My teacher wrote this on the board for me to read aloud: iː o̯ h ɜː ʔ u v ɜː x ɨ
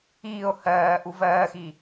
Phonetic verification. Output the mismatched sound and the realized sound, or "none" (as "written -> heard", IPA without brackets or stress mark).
ɨ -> i